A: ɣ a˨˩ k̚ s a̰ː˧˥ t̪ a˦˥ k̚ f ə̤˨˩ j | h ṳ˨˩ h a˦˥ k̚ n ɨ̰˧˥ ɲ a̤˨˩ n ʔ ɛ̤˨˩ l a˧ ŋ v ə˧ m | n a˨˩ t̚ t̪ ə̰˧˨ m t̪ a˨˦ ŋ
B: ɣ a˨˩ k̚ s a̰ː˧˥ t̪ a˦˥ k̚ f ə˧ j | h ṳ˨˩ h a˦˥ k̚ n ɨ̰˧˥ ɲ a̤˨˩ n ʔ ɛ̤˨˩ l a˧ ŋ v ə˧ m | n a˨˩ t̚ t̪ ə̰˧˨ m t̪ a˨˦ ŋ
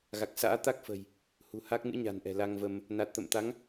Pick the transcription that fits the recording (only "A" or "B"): A